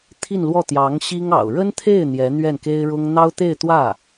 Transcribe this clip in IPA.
t̪ʰi˥˧nlwɔ˥˩t̪jɑ˧˥ŋ ɕi˥ŋɑ̰˨˩ʊ̯ ɻə˥nt̪ʰe˥˩ɪ̯ n̪jɛ˧˥ n̪ɥɛ˥˩nke˥ɪ̯ɻʊ˥ŋ n̪ɑ˥ʊ̯t̪e˥˧ɪ̯ t̪wä˥˩

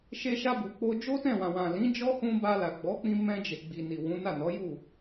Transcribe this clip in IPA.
ʃe˧ʃa˧bu˨k͡po˧ d͡ʒo˦tɛ̃˦˨ wã˨wã˨lĩ˨˦ d͡ʒɔ˦hũ˧ba˧ la˨ɡ͡bɔ˨˦k͡pĩ˧ mɛ̃˧d͡ʒe˨ɡ͡bi˨ ni˨wũ˨˦na˦˨nɔ˨˦ ju˦˨

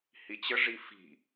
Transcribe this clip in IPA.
hit͡ɕə ʐifi̤

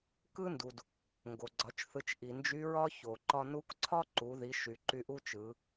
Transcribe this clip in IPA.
kɯ˥ndu˩d | ŋɡo˩ɡ͡ǀɒ˩˧t͡ʃ θɯ˩˧t͡ʃ ʔi˩ nd͡ʒy˧˥ɹɒ˥ ço˩ǃɒ˧nu˧˥kǀʰɒ˥ ǃu˩˧ði˩˧ʃy˩ ǃy˧ʔu˥t͡ʃɯ˩˧

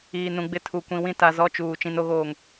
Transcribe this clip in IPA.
iː˨nũ˨ɡ͡bɪ˦ tʰu˨ kʷĩ˨wĩ˦ta˨ zɔ˦t͡ʃuː˨ t͡ʃĩ˨no˨ɣoː˨ŋ

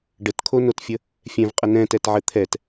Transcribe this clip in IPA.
ɖətkʰonotfʲə | fʲɛ̃vqʼə nɛ̃tɛtʕɘ t̪ʰɛt

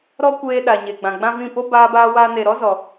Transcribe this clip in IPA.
ɾɔ˦kʷeː˧ɗa˨ ɲe˨ɡ͡bã˨ɡ͡bã˦vĩ˦˨ po˦baː˧baː˧waː˧ ne˨ɾɔ˦zɔ˨

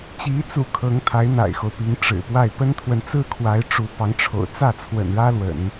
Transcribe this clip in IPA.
t͡ɕi˧˥t͡sṵ˨˩ kʰɤ˧˥ŋt̪ʰa˧˥ɪ̯ n̪a̰˨˩ɪ̯xo˦ʊ̯pi˧˥ŋ ʈ͡ʂɻ̩˨˩pwa˥˩ɪ̯ pə˥nt̪ʰwə˨nt͡sɹ̩˥˩kʰwa˧˥ɪ̯ ʈ͡ʂu˧˥pɑ˧˥ŋʈ͡ʂʰo̰˨˩ʊ̯ t͡sä˥˩t͡sʰwə̰˨˩n ɻä˥lwə̰˨˩˦n

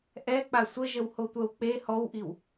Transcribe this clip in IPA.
ʔɛ k͡pasʷəʒəw hotʷœwk͡pe hɔwʔiw

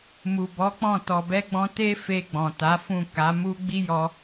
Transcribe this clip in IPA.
mu˨bɔ˨˦k͡pɔ̃˦˨ tɔ˨bɛ˧ɡ͡bɔ̃˧ te˦fe˧ ɡ͡bɔ̃˨ta˨˦fũ˦˨ ka˨˦mu˦ ɡ͡bi˦jɔ˧

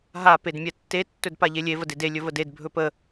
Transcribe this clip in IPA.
ɦa pedmʲɛtːe tːɵdpaʎelʲe vədede lʲɵvəded bʱɵpə

